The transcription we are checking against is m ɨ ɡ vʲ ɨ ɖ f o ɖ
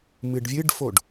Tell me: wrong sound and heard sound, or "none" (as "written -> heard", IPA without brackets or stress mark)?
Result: ɡ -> ɖ